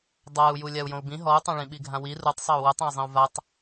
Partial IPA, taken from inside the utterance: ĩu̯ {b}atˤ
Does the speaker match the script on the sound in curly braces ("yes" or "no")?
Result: no